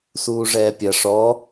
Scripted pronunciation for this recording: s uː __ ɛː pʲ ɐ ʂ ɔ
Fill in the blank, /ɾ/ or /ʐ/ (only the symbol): ʐ